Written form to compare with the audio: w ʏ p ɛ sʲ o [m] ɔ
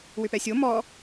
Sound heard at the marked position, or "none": m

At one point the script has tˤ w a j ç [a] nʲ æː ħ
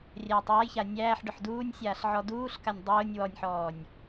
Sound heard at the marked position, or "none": a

